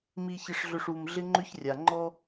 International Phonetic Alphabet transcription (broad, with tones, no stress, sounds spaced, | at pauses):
m i˨ ç ɪ˨ ʂ ɮ ʏ˨ ʂ u˨ m ɮ ɪ˦ ŋ͡ǃ ʏ˦ ç rʲ a˨ ŋ͡ǃ ɔ˦